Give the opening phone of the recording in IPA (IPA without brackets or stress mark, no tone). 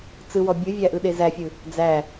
t͡s